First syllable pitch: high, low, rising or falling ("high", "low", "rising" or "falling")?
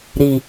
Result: low